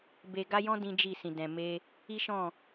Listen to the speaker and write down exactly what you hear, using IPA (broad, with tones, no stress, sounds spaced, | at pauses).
b e˦ ɡ a˦ j ɔ̃˦ d ĩ˦ d͡ʒ i˦˨ s ĩ˨ d ɛ̃˨ m e˧ | i˦ ʃ ɔ̃˦˨